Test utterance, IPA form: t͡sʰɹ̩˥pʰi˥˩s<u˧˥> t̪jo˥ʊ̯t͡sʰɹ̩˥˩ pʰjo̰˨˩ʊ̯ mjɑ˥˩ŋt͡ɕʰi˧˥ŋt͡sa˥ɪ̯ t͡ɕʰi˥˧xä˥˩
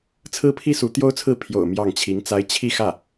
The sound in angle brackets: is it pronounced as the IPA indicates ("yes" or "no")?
yes